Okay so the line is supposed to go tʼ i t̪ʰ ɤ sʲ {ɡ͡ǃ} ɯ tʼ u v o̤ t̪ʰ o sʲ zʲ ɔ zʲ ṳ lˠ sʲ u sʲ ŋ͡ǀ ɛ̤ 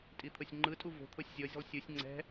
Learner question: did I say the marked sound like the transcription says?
no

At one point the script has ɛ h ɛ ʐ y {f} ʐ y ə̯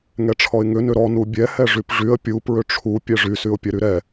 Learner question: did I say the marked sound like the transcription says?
no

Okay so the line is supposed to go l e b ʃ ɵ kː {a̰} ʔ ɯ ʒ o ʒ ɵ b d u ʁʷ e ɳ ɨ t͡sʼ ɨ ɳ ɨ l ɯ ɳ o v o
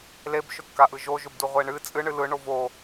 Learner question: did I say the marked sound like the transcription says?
no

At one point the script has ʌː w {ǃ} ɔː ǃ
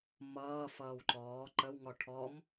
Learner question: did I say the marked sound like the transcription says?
yes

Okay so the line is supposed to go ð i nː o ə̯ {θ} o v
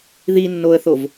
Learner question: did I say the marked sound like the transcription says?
yes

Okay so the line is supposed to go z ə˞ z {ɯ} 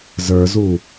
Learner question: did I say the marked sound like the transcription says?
no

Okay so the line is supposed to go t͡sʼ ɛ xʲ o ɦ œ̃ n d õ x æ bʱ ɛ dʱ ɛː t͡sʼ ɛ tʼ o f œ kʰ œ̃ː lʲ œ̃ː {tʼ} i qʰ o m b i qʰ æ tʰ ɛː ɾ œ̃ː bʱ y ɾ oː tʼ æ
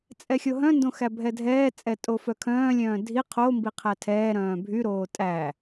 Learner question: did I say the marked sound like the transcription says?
no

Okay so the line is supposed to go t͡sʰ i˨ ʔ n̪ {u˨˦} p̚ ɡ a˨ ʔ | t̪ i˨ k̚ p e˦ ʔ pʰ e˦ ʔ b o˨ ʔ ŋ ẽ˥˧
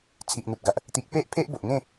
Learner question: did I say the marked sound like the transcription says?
no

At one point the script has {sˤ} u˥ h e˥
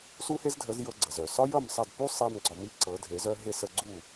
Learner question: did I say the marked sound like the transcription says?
no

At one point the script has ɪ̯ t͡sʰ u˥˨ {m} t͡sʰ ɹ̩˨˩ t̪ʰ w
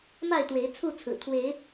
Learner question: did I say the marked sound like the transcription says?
no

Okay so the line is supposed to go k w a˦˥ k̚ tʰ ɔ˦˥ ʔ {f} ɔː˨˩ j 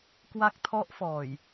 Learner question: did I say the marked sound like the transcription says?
yes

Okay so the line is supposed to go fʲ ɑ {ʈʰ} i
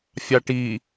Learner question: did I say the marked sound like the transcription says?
no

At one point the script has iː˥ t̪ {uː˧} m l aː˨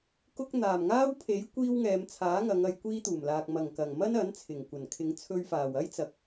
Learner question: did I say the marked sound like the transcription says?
no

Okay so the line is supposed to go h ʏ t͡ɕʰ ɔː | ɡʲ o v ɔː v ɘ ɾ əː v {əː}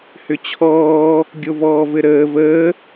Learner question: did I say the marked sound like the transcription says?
yes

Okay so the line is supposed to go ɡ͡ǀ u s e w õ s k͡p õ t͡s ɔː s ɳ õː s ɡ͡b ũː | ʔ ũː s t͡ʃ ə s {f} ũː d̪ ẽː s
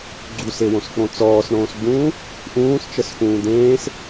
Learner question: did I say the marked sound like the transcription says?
yes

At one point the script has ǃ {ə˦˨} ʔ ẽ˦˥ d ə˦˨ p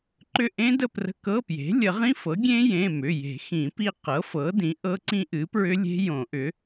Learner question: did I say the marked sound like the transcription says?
no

